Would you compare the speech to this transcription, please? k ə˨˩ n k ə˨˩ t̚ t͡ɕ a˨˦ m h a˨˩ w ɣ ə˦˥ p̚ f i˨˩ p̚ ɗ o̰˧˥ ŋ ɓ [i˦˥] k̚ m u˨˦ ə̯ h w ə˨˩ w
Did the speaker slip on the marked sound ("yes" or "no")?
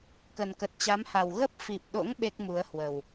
yes